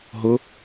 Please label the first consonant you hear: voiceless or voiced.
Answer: voiced